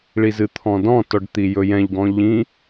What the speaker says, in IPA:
ɭ i z ɨ t̪ʰ ɔ̃ d ɔ̃ t ɔ ɖ t̪ i j ɵ j ɛ̃ ʎ ɡ ɔ̃ ʎ ĩ

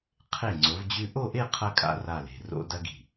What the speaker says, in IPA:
qʰ e˧˩ ŋ͡ǀ o˩˧ v d͡ʑ ʉ˧ ʔ o˥˧ ʔ e˥˧ qʰ ɐ˧ kʼ a̰˧ r a˧˩ l e̤˧˩ r o̰˧ d ɐ˧ ɡ i̤˧˩

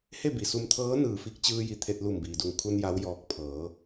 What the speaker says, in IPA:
h e˥˨ b i˩ s u˧ m t̪ʰ ɤː˧˥ n ɯː˧˩ f i˧˥ k̚ t͡ɕ ɯː˧ j i˧˩ t̪ʰ e˧ t̚ l u˧˩ m b iː˩ d u˧˩ ŋ kʰ u˧ n j a˧˥ w j ɔː˧ k̚ pʰ ɤː˩˧

